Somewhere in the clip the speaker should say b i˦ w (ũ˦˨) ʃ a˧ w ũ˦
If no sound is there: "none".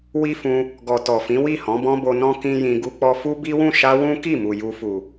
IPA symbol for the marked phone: ũ˦˨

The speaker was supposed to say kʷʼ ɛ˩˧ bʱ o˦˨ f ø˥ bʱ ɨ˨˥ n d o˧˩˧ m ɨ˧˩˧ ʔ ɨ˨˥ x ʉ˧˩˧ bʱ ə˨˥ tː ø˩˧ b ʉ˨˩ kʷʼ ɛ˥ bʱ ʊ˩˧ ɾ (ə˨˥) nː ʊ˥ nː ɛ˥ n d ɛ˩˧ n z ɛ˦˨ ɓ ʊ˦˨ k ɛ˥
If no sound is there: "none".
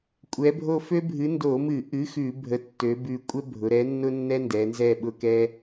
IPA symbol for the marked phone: ɛ˨˥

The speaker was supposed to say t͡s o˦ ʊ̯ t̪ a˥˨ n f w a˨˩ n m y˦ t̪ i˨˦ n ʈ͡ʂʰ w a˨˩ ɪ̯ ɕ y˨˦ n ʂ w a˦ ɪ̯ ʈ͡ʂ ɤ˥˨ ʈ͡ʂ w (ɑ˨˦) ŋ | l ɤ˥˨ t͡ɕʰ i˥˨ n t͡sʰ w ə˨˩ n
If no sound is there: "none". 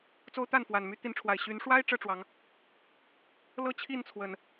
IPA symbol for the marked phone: ɑ˨˦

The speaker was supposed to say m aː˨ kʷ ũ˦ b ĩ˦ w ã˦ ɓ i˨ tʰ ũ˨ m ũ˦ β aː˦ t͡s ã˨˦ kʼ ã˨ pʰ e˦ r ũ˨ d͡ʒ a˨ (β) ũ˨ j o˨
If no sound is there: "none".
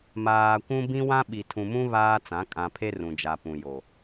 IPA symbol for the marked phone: p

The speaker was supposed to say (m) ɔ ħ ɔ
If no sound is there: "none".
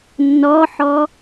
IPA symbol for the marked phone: nː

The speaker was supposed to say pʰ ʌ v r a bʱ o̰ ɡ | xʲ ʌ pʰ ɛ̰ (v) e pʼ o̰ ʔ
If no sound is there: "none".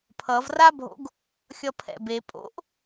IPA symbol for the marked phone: b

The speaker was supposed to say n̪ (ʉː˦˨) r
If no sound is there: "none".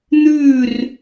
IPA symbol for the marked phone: ʉː˦˨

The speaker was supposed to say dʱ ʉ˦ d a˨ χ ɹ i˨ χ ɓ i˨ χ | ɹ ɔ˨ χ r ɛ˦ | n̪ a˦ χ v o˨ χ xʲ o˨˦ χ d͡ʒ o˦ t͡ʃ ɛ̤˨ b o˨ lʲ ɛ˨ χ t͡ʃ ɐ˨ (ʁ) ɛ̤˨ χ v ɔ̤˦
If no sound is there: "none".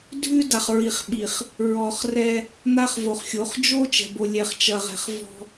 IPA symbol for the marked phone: ʁ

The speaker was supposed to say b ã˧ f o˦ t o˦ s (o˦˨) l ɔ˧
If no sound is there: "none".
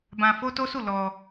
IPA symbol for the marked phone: u˦˨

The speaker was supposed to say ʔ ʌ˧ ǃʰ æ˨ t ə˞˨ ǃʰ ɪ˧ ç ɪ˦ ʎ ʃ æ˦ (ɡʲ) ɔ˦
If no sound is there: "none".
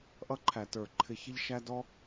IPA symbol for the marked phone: d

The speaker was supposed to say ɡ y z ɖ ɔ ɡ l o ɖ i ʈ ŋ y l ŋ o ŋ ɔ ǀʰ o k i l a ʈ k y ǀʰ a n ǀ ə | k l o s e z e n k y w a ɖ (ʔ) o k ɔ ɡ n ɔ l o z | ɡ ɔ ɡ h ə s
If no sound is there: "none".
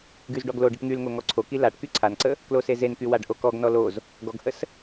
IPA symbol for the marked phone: ʔ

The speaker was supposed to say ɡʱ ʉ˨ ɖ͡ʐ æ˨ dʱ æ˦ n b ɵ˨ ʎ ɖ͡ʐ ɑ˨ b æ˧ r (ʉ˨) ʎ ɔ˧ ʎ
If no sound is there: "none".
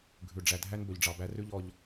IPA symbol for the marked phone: ʉ˦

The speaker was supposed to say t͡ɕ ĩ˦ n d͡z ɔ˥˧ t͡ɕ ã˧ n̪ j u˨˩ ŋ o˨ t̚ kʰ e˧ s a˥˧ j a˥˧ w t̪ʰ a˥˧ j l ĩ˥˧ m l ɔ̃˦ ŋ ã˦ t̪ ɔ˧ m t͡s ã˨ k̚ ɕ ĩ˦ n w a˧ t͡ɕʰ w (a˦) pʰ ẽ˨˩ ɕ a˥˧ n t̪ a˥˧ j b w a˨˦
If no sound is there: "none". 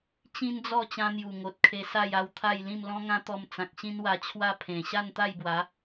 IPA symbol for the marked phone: a˦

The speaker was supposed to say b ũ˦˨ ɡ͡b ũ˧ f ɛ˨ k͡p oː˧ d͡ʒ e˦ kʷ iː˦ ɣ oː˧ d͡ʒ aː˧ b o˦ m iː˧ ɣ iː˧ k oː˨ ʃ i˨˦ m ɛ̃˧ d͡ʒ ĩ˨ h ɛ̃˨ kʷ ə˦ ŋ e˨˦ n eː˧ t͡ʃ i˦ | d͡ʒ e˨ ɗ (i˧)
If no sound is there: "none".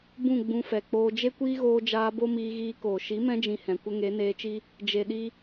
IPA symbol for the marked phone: i˧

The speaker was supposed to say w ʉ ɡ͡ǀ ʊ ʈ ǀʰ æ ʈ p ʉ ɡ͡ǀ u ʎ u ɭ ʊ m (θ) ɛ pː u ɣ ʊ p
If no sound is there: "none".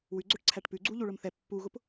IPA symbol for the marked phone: θ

